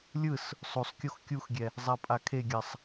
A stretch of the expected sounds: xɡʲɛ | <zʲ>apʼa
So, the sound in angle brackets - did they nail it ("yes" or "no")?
no